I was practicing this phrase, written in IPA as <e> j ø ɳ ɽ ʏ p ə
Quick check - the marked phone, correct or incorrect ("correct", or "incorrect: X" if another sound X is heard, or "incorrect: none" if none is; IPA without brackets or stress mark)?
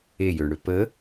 correct